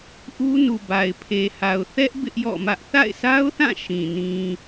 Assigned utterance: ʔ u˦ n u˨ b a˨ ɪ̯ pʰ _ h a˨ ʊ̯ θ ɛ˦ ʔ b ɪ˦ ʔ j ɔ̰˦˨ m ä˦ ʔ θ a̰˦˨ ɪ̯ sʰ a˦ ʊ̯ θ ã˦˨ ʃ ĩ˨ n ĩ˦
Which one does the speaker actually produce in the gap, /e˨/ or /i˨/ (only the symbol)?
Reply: e˨